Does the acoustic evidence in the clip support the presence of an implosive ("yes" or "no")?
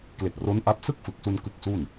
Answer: no